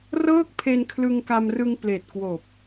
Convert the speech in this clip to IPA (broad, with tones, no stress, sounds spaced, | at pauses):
r ɤː˥˩ k̚ pʰ e˧ n kʰ l ɯ˧ ŋ k a˧ m r ɯ˧ ŋ p l eː˨˩ t̚ k w oː˨˩ p̚